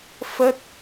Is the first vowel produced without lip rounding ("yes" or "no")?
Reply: yes